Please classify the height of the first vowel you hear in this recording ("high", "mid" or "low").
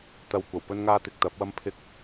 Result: low